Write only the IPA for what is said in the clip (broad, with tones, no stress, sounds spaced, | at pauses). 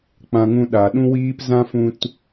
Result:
k͡p ã˧ ŋ ũ˧ ɗ a˨ ɗ ũ˧ w iː˧ p z ã˦ f ũ˧ t